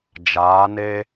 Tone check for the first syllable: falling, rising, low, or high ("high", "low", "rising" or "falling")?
rising